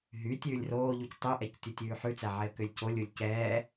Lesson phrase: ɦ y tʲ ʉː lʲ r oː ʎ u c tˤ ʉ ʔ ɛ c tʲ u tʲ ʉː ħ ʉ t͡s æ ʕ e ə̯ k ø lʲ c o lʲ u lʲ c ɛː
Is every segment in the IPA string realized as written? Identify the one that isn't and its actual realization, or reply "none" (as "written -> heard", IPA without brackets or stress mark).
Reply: none